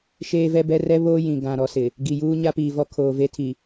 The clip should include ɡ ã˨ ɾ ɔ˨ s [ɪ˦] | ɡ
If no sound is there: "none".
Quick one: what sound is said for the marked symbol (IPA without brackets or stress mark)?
ɪ˨